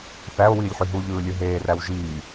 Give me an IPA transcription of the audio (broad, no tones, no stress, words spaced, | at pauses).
θæo̯wiːlʲħy ɦuʎɯːlʲɯ ɦeːræw ʒiː